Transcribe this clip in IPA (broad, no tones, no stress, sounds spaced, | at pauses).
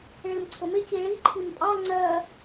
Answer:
ɭ ɪː m ǀʰ ʊ m ɪ c i ɭ i ǃʰ i m pʼ ɑ ŋ͡ǀ ɜ